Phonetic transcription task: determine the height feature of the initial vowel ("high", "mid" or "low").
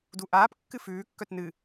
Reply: high